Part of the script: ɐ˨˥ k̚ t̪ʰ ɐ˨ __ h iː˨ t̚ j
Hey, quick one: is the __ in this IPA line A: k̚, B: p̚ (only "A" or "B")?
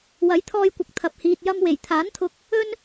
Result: B